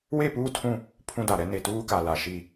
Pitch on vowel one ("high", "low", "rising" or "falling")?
falling